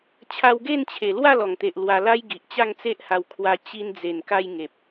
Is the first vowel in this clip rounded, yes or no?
no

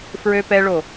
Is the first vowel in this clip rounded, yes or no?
yes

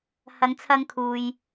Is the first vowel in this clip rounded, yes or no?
no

